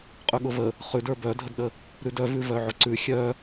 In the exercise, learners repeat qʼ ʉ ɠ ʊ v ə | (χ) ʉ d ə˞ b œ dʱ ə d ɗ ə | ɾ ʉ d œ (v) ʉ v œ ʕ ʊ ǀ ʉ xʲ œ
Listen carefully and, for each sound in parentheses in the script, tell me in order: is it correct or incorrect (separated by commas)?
correct, correct